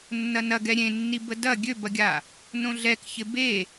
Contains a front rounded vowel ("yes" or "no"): yes